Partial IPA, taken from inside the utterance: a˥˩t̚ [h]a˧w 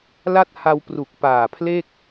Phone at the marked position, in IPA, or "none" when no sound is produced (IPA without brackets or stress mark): h